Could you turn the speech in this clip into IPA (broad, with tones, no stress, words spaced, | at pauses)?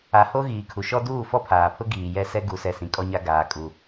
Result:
a˨ho˦ ɣiː˨kʰu˨ʃɔ˦ duː˦˨fɔ˦pʰaː˨pʰʊ˦ ɡiː˨ jɛ˦sɛ˦ ɡu˨sɛ˨ sĩ˨kʼɔ˦ɲa˦ ɡaː˨kʼu˨